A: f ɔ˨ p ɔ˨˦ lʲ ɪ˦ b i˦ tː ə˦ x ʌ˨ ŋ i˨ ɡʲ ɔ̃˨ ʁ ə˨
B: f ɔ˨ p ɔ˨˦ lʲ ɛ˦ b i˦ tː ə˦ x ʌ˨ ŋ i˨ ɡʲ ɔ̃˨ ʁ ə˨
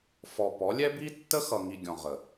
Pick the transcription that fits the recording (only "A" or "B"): B